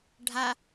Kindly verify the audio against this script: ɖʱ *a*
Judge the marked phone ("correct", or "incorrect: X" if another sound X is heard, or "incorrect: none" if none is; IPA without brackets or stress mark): correct